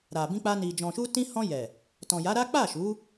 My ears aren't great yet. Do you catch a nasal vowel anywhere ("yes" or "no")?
yes